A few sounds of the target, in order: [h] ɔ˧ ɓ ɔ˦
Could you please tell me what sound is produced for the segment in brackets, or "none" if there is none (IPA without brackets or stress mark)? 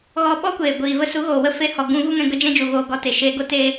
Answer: ɣ